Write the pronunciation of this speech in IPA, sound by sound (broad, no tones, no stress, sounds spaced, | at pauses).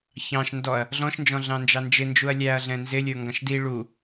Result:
ç ɑ̃ ʃ n d ɔ ɐ̯ | ɮ ɔ̃ ʃ n d͡ʒ ɔ̃ ɮ ɑ̃ n d͡ʒ ɑ n d͡ʒ ɪ n d͡ʒ u ɐ̯ lʲ æ ɐ̯ ɮ ɛ̃ n z ɪ lʲ ə˞ ŋ ɡ ɑ̃ ʃ d i ɭ u